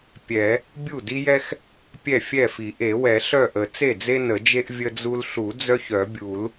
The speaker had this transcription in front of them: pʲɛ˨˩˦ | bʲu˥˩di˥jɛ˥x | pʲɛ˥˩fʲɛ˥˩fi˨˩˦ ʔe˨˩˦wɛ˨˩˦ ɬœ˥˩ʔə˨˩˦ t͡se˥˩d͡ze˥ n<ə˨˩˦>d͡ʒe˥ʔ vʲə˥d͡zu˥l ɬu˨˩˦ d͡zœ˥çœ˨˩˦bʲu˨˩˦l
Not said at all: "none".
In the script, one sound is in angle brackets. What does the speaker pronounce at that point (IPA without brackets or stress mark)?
ə˨˩˦